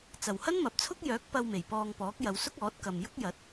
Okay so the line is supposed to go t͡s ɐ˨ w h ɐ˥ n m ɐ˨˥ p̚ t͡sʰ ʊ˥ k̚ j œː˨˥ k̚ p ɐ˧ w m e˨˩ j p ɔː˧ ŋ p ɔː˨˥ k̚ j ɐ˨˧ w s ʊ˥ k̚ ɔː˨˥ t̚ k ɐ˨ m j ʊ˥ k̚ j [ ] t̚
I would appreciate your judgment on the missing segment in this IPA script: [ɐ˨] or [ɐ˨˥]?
ɐ˨˥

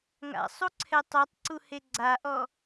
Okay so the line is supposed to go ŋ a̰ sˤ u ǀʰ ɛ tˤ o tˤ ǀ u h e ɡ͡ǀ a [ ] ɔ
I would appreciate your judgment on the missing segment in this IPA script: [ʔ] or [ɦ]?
ʔ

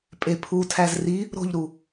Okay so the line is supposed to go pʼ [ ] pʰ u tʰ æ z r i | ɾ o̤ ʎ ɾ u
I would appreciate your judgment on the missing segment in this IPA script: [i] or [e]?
e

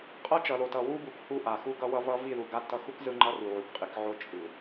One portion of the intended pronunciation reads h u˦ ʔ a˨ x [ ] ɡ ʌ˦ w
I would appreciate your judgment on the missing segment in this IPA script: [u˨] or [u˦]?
u˦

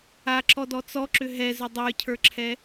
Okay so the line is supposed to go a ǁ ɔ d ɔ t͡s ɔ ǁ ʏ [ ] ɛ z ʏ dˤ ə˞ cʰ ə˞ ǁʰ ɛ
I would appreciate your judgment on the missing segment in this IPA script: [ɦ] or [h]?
ɦ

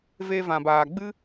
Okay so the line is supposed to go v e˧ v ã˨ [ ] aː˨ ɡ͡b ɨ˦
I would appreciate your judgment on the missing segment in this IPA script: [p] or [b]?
b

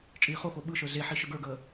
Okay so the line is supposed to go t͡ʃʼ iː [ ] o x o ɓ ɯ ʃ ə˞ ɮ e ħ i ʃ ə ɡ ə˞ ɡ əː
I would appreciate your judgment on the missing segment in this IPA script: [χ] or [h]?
χ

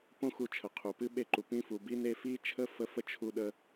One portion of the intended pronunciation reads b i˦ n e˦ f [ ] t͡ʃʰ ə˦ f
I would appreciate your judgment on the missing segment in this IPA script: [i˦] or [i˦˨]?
i˦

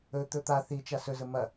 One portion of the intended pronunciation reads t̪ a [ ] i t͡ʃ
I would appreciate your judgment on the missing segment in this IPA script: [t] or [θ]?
θ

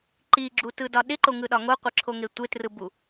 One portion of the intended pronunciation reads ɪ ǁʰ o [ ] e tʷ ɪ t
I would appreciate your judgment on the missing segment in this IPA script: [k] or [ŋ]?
ŋ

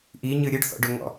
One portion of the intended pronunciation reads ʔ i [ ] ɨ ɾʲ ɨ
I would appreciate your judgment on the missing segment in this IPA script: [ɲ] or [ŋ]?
ɲ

